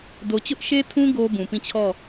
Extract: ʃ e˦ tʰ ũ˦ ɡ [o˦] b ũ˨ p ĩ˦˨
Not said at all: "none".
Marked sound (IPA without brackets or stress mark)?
o˦